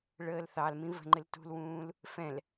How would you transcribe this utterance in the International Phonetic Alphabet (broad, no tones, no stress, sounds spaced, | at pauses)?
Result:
ɭ əː l θ ɑ l m ĩ v ə̤ ŋ͡ǃ ɪ l t ṳ l w ũː l | f ɛ̃ l